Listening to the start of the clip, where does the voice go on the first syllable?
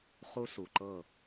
high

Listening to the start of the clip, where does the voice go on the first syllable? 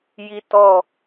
high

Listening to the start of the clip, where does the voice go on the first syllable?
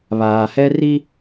low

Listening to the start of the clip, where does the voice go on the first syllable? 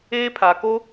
high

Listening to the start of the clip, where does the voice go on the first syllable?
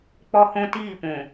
high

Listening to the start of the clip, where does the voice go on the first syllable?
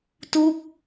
falling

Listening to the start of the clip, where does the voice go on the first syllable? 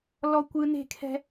high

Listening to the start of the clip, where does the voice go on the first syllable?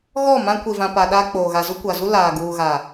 falling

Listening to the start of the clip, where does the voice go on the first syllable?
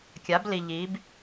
rising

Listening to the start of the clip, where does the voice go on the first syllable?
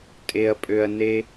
low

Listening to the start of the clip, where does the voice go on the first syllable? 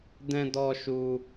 high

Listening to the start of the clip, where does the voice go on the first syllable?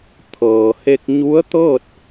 low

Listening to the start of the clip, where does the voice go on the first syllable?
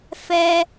high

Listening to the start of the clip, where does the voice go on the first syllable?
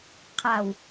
low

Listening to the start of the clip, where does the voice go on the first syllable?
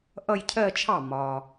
falling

